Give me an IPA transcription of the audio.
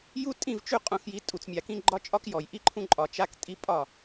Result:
j u˦ tʼ ĩ˦˨ v t͡ʃ ʉ˦ qʼ ũ˨ x j i˨˦ tʼ u˨ t͡s mʲ a˨ k ĩ˦ ɡ͡ǃ ɒ˦ t͡ʃʼ ɒ˦ k j ɔ˨ j ʔ i˦ ǃʰ ũ˦ ǃʼ ɒ˨ t͡ʃ a˦ k tʼ i˦ pʼ ɒ˦˨

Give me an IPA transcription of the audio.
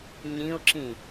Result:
ɲ ĩ ʊ̯ ǁ ĩ

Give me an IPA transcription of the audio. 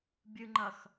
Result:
bʲ ɨ ŋ͡ǃ ɐ x

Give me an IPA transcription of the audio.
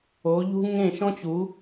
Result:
o˨˦ ʎ ṳ˦ ŋ ẽ˦˨ ʃ ɔ̃˦ t͡ɕ u˨˦

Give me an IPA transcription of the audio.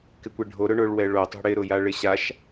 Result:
k ɪ kʷ e ɖʱ o ɾ ʊ ɳ ʊ ɭ w ɛ ɭ o tˤ ṳ ɽ ɪ ɾ ʊ j a ɭ ɪ ɕ a ʃ

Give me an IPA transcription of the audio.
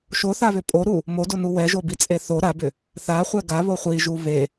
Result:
ʃ o θ a β ʏ pʼ o ɾ u | m o d o n u w ɛ ʒ o b i t͡sʼ e θ o ɾ a b ʏ | θ a χʷ ɛ ɡ a β o χʷ i ʒ u β e

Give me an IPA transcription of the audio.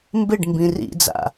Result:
m b ɪ ɖ m b ĩ r ḭ d͡z a̰

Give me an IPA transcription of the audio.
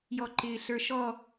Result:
j ɔ ǃ ɪː ɬ ə˞ ʃ ɔ

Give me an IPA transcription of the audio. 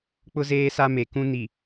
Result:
k͡p ʊ˦ z eː˦ s a˦ m e˨ k ũ˦ n i˨

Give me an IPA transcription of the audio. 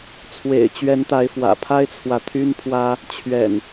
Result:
t͡sʰ w ḛ˨˩ ɪ̯ t͡ɕ ɥ ɛ˨˦ n t̪ a˨˦ ɪ̯ f w ä̰˨˩ pʰ a˦ ɪ̯ t͡sʰ w ä˨ t̪ʰ y˦ n pʰ w ä˦ | t͡ɕʰ ɥ ɛ̰˨˩ n

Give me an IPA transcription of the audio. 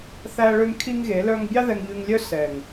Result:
θ æ˦ ɭ ø˦ ŋ kʰ i˦ ŋ ɣ e˨˦ l œ˧ ŋ bʲ ɑ˦ ð ɛ˧ ŋ ʎ ʉ˧ ŋ lʲ œ˦ s ɛ˨ ŋ

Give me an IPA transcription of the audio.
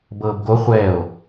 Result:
b ɤː b ɡ o χʷ ɛ o̯

